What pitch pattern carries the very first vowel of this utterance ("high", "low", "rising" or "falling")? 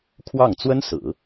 falling